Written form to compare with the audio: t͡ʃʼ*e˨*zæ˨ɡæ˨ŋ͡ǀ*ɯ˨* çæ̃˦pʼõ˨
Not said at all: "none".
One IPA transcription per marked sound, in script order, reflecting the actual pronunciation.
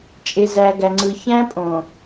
e˨, ɯ˨

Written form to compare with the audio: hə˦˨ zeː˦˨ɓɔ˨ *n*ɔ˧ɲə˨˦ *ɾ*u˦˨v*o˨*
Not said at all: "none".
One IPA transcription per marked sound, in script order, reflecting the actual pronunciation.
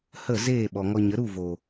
ŋ, ɾ, o˨

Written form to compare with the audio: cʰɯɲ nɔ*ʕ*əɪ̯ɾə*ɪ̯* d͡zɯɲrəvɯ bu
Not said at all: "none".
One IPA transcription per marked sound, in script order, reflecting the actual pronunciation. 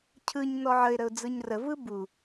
ʕ, ʊ̯

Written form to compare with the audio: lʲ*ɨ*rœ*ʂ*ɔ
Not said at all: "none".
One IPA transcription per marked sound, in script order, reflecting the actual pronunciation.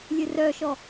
ɨ, ʃ

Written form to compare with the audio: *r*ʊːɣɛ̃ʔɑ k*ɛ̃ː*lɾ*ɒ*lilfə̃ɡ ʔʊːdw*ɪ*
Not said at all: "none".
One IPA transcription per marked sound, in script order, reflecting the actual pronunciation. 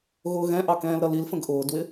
ɣ, ɛ̃ː, ʌ, ɪ

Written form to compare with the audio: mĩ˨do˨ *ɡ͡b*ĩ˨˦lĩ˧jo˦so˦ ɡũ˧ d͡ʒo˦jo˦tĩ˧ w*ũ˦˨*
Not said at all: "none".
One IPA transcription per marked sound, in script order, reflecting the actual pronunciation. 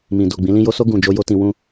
ɡ͡b, ũ˦

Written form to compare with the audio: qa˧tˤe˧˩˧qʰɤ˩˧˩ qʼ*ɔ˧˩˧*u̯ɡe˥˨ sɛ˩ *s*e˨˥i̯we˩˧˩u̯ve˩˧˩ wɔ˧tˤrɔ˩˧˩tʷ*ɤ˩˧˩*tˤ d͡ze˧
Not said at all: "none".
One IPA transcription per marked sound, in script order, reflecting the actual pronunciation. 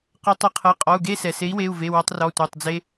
ɔ˩˧˩, s, ɤ˩˧˩

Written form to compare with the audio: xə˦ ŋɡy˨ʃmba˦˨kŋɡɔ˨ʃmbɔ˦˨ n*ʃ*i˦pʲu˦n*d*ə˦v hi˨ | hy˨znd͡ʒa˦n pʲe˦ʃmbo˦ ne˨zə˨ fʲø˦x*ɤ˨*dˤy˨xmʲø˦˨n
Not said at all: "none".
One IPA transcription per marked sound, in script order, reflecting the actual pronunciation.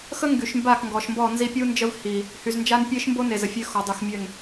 z, d͡ʒ, ɔ˨

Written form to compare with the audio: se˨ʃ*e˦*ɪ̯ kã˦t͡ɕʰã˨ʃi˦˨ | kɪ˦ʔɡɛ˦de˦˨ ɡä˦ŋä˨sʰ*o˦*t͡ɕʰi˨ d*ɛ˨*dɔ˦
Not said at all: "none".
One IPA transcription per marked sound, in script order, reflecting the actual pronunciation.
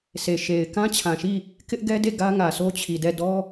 e˨, o˦, ɛ˦˨

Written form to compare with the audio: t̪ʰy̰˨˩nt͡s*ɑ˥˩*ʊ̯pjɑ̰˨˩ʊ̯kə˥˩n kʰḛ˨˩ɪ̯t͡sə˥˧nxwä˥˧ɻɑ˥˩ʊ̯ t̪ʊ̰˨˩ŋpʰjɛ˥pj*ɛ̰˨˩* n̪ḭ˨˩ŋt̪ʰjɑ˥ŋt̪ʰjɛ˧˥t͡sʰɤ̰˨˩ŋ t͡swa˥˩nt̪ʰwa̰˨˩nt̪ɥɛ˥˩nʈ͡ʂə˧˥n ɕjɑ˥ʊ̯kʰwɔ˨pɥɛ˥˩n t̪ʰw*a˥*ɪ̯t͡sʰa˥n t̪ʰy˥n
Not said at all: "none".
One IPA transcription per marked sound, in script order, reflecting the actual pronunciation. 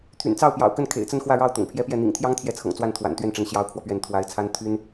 ɑ˥˩, ɛ˥˩, a˧˥

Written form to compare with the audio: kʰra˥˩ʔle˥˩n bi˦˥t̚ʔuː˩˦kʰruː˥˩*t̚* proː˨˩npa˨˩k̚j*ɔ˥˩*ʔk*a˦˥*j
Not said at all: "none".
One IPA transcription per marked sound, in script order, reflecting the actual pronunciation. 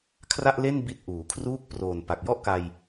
k̚, ɔ˥˩, a˧

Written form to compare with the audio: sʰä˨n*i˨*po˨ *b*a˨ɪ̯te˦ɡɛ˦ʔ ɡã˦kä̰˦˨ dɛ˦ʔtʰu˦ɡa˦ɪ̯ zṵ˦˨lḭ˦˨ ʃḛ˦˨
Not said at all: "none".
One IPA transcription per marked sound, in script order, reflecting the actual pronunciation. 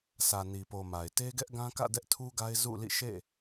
i˨, m

